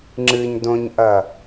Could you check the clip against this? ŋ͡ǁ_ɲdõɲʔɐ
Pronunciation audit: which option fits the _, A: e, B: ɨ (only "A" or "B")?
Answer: B